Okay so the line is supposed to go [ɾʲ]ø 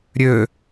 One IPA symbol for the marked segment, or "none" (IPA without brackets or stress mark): ɾʲ